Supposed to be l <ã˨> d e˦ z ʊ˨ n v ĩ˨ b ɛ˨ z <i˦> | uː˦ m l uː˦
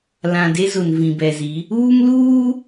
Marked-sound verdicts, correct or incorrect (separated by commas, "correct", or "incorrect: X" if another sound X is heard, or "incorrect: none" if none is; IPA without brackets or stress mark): correct, incorrect: i˨˦